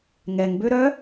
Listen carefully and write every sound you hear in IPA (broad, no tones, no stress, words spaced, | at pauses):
ŋɛŋbø ɾœ